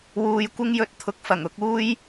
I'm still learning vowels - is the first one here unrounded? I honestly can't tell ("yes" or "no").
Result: no